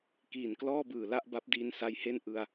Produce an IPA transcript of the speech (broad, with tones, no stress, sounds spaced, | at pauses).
k iː˨˩ n k l ɔː˥˩ b ɯː˨˩ l a˥˩ ʔ b a˦˥ p̚ d iː˧ n s a˦˥ j h e˥˩ n ʔ ɯ˧ a̯